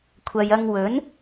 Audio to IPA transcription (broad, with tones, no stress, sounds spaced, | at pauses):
kʷʰ ɐ˨ j ɐ˧ ŋ w ɵ˨˥ n